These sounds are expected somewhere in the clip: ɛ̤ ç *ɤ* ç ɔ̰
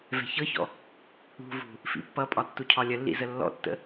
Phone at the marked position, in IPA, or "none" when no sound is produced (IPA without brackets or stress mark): ɤ